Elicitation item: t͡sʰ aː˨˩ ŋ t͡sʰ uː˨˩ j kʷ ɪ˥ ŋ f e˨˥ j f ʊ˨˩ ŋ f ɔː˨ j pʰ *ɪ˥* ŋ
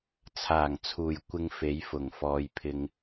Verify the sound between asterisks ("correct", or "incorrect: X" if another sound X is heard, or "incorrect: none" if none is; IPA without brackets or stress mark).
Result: incorrect: ɪ˨